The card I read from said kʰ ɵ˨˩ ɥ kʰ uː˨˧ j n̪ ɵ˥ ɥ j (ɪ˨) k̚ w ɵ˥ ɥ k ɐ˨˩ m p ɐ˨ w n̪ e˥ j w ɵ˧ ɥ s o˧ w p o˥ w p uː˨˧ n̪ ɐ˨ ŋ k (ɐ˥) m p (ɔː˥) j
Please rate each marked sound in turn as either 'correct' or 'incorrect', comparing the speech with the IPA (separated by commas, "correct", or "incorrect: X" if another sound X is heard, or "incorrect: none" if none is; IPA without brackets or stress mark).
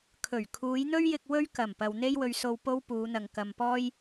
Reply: incorrect: ɪ˧, incorrect: ɐ˨, correct